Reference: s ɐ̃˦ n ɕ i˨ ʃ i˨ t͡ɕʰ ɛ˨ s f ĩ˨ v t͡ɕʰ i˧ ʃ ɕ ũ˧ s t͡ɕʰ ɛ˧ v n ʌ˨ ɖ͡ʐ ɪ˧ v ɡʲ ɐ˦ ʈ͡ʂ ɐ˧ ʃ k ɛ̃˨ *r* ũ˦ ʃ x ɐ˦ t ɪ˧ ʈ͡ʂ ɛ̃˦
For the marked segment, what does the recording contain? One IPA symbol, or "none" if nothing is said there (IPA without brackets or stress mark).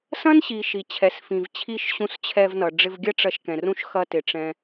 r